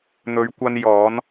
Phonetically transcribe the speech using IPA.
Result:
n̪ ɵ˨˧ ɥ kʷ ɐ˧ n j ɔː˨˧ n

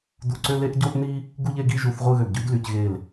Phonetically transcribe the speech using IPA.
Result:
d u˧˩ ǀ ø˥˧ l e˥ ʔ ɟ o˥ ʔ n i˥ | ɡ u˥˧ ʎ e˥˧ ɡ i˥˧ ʒ u˧˩ θ ʁʷ ɯ˥˧ ɣ ø˧˩ ɡ ɟ y˥ d l y˩˧ c ɣ e˧˩ l

